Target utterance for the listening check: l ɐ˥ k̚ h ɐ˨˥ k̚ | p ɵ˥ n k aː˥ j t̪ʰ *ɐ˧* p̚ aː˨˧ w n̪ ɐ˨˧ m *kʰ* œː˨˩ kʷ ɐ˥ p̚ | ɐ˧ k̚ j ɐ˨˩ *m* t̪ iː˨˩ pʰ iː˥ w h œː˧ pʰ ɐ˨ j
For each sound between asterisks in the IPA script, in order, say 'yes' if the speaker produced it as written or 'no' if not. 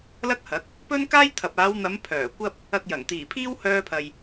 no, no, no

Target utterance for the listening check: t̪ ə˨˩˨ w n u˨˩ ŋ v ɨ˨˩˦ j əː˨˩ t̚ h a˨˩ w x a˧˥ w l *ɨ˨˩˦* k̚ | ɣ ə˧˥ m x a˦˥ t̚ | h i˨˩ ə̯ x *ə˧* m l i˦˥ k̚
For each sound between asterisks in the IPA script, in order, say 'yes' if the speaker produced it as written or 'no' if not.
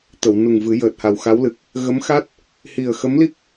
no, no

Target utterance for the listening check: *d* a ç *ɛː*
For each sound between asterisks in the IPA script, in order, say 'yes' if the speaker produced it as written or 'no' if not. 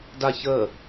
yes, no

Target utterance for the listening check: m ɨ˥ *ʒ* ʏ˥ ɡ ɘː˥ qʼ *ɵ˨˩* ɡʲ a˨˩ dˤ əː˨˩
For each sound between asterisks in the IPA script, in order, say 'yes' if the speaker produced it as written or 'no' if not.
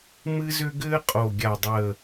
no, no

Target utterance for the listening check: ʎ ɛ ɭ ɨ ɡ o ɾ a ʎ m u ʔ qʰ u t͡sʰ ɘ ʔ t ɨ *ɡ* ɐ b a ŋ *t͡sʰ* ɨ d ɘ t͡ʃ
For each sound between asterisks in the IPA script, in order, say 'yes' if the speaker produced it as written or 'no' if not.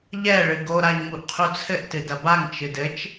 no, no

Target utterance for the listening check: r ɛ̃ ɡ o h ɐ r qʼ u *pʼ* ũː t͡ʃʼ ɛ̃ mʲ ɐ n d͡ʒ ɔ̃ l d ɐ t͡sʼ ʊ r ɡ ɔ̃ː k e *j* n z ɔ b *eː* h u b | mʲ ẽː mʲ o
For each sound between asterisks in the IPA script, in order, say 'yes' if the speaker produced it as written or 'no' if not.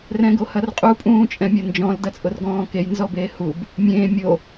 yes, yes, yes

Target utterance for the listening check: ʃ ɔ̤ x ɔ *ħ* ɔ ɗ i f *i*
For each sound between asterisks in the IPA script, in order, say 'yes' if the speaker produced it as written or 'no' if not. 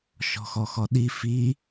no, yes

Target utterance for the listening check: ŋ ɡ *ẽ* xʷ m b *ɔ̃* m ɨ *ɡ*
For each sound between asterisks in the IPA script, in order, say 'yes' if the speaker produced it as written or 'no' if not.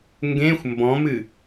yes, yes, no

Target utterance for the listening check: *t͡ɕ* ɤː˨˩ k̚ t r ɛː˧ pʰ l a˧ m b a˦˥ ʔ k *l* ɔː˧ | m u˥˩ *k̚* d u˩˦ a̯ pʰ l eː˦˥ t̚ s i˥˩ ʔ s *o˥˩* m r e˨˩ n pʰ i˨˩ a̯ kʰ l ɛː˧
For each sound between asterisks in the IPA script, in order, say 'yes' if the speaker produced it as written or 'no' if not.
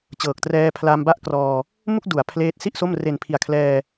yes, no, yes, yes

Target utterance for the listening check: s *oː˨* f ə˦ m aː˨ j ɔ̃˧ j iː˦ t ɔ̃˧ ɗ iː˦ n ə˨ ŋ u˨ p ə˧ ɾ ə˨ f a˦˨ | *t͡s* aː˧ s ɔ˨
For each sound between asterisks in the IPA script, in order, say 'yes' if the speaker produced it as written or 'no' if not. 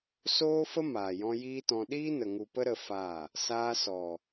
no, no

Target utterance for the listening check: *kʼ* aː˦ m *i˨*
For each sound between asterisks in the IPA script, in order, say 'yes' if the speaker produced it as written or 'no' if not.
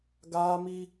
no, no

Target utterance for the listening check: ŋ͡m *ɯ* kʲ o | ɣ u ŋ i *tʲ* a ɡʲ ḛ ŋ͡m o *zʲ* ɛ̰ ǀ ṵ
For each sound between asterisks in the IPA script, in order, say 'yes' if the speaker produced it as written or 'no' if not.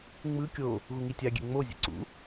yes, yes, yes

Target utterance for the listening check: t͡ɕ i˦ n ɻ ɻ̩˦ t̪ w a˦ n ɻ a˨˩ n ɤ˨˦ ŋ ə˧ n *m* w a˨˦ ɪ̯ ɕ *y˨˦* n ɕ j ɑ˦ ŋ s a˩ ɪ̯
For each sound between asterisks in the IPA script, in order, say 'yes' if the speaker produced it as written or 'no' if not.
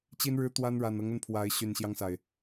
no, no

